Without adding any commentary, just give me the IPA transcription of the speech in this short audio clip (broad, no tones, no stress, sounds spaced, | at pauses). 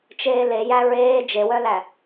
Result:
t͡ʃ eː l e j æ ɹ eː d͡ʒ e w œ l æ